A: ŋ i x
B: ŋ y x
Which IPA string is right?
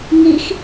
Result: A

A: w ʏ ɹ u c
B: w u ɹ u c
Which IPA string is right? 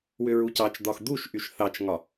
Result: A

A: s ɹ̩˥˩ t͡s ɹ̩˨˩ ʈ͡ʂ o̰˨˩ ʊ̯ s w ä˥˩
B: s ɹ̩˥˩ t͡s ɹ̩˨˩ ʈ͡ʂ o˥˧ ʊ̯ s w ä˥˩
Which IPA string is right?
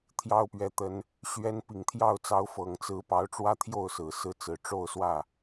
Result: B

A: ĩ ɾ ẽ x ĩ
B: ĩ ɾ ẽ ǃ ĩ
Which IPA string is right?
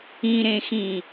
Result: A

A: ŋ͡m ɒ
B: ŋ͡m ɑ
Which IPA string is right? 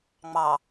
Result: B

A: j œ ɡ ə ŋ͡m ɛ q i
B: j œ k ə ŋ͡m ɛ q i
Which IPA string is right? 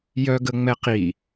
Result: A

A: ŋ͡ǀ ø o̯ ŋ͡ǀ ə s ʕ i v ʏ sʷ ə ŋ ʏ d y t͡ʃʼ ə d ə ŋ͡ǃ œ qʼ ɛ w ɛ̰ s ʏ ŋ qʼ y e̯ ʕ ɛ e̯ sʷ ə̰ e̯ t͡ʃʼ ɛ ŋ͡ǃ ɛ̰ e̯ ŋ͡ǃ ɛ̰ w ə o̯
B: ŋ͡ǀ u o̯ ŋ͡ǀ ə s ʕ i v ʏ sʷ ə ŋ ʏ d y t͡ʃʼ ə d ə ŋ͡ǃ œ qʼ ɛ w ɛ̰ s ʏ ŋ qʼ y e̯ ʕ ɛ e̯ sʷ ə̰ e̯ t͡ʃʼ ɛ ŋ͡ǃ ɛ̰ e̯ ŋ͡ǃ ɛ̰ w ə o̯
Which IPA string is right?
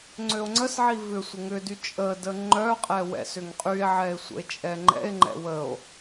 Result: A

